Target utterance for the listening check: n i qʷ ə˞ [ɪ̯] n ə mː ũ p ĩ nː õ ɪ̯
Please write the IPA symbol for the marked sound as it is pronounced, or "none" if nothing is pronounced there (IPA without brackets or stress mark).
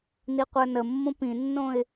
none